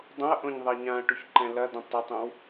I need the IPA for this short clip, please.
dˤ õ ɐ̯ ʔ õ ɲ ðˤ ɛ ɲ ã ɐ̯ ʈ u ç ǃ ɛ̃ l ɐ d ə̃ tˤ ə tˤ õ w

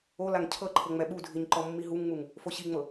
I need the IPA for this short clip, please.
o l a ŋ cʰ ɤ ǃʰ ɤ ŋ͡m ɛ ɓ u dʱ i ɲ ǃ ɔ mː i ɦ u ŋ ŋ͡m u ŋ | f o ɕ i ŋ͡m ɤ

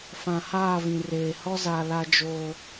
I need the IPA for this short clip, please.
f ã˨ h aː˦˨ v ĩ˨ r eː˨ h ɔ˦ z a˨ l a˦ d͡ʒ o˦

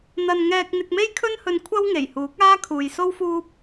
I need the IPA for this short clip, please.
n̪ ɐ˨ n ŋ ɛː˧ k̚ n̪ ɪ˧ k̚ m e˥ j kʰ ɵ˥ n h ɵ˧ n kʷʰ ɐ˥ w ŋ e˨˩ j h uː˨˥ k̚ aː˥ kʰ uː˨ j s o˥ w f uː˥ p̚

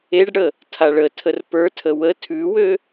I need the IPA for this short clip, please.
e ɖ ɽ ə | tʰ a ɭ ə tʰ ə r p ə˞ tʰ ə w ə tʰ ʉ w ø

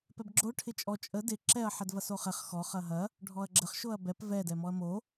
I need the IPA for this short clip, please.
p ɛ b ɡ͡ǁ o ʈʰ ɪ t͡ʃʼ ɔ t͡ʃʼ ə d ɪ ǁ ɛ ɐ̯ ħ ɛ d v ɐ s o χ ɛ χ x ɔ χ ɐ ɦ ɐ | ɖʱ ɔ ɐ̯ ɡ͡ǁ ə χ ʃ o ɐ̯ b ɛ p v ɛ d ɛ m ɔ ɐ̯ m o

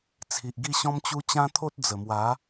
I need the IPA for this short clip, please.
t͡sʰ i˨ ʔ ɡ i˥˧ ɕ ɔ̃˦ m t͡ɕ u˦ t͡ɕ ã˦ t̪ʰ o˦ t̚ d͡z ə˨˩ m w a˨˦

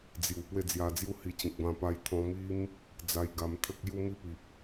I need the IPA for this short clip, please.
d͡z j u˨˩ p w e˥˧ d͡z j a˧ d͡z j u˥˧ h i˧ t͡ɕ ĩ˨ k̚ b ã˧ p a˧ j t̪ʰ ɔ̃˧ m i˦ m | d͡z a˧ j ɡ a˧ m t̪ʰ ə˦ k̚ j u˦ m i˦ p i˨ p̚

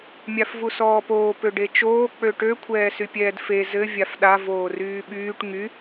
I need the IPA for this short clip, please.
mʲ a f v u s ɔː p oː p ø ɖ e t͡ʃ oː k͡p ø ʈ ø kʷʰ ɛː s y pʲ ɛː d f e z ɘ vʲ a f ɗ a v oː r yː ɓ yː ʈ ŋ y

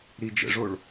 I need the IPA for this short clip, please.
ɾ i d͡ʒ ə̰ ʐ o ɭ

